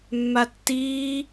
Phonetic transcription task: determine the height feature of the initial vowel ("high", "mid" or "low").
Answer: low